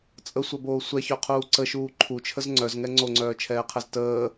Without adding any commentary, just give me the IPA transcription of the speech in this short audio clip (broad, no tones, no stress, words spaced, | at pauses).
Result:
t͡sʼəsʷœboː sʷɛçœqʰuː ǀəʃuː ǃʰut͡ʃʰəz ŋ͡ǀœzŋɛ ŋ͡ǀoŋ͡ǀœːt͡ʃʰɛːqʰɛz təː